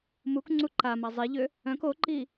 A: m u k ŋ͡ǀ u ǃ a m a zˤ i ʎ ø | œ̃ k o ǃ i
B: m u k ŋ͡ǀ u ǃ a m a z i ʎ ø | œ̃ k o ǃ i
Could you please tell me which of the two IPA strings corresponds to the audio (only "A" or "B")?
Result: A